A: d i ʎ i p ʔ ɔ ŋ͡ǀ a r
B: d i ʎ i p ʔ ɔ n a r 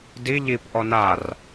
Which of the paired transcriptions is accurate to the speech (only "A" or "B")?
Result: B